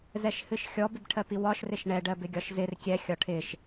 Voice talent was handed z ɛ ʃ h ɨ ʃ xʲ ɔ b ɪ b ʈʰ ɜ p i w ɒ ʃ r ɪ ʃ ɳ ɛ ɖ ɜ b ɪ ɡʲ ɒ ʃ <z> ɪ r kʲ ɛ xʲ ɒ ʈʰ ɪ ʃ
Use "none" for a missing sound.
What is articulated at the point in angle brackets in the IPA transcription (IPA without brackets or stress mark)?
z